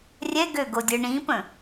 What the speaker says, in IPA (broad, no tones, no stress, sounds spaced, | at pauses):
rʲ ɛ ɡ ø ɡ o dʲ ə˞ ɳ ĩ p ə̃